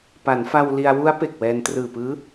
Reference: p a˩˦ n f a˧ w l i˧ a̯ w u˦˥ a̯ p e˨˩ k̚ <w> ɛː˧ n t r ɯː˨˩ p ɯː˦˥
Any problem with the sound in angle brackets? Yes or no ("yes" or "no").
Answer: no